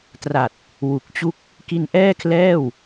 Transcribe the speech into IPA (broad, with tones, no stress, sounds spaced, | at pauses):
t r a˨˩ t̚ | w u˨˩ k̚ t͡ɕ u˥˩ k̚ | k i˧ n ʔ ɛː˥˩ kʰ l ɛː˥˩ w